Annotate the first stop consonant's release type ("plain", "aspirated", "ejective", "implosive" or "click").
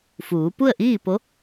plain